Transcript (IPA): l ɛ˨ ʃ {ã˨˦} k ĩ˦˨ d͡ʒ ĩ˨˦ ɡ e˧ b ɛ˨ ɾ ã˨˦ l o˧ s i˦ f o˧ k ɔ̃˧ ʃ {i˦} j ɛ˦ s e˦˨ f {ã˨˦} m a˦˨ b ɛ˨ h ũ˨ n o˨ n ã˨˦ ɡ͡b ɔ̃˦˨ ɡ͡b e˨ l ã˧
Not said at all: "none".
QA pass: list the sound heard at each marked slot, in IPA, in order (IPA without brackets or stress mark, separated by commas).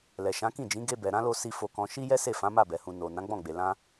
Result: ã˨˦, i˦, ã˨˦